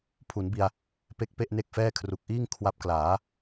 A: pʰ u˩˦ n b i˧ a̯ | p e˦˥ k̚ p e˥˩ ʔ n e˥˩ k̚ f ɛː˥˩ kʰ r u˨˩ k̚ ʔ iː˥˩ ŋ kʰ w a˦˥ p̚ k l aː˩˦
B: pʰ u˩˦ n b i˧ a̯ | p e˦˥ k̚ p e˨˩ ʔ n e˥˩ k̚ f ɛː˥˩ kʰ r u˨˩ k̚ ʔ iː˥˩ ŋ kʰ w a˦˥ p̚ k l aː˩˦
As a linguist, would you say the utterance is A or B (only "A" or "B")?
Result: A